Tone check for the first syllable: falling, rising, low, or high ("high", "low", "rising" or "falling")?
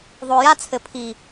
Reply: low